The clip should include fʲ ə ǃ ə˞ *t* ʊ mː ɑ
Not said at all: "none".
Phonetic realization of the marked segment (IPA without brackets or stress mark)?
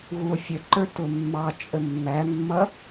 t